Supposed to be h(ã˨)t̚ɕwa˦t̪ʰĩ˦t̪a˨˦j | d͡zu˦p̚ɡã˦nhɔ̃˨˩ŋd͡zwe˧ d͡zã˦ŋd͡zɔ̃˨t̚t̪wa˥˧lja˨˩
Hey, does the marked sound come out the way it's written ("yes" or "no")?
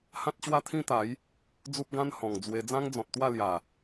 no